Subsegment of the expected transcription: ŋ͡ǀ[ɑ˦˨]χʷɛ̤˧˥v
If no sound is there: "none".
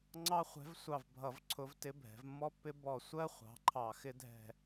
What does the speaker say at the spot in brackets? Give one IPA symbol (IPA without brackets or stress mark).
ɑ˥